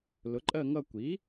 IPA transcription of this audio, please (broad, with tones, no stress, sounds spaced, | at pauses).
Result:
l ʊ˩˥ ǃʼ ɜ˥˧ ŋ ʌ˥˧ kʷ i˩˥